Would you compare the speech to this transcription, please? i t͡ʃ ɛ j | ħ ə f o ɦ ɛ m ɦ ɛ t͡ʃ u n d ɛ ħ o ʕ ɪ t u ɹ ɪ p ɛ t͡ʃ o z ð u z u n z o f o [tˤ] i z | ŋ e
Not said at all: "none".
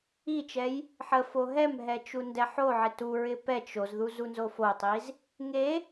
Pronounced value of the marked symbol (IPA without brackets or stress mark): tˤ